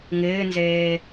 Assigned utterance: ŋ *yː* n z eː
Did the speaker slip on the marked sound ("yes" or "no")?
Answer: yes